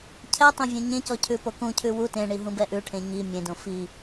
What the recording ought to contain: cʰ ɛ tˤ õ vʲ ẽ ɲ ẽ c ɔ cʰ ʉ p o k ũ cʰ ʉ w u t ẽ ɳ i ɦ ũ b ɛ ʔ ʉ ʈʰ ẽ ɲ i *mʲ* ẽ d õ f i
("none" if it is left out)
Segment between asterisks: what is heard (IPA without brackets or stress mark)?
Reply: mʲ